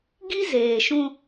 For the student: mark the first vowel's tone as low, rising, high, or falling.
high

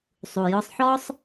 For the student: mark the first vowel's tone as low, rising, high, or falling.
low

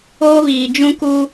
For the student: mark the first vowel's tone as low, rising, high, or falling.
high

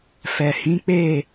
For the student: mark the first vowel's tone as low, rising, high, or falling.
low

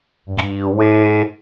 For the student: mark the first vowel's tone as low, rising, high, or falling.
low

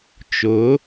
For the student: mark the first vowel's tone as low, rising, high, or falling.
rising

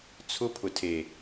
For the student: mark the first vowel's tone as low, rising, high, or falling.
high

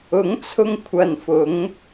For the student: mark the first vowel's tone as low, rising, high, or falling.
rising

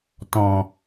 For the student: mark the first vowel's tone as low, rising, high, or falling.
low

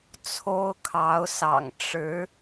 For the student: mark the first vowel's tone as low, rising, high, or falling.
high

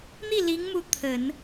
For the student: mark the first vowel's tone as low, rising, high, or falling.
falling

